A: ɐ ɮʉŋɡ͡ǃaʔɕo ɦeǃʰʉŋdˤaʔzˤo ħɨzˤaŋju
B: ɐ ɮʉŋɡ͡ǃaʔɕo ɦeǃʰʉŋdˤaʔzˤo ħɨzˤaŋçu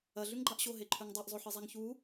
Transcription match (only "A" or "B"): B